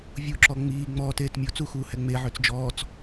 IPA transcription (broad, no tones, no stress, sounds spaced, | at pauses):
vʲ u ǁ ɔ ŋ͡m iː ŋ͡m ɔː t eː t mʲ o t͡s u x uː h ɛ ŋ͡m e ʕ ø t͡s d͡ʒ ɔː t͡s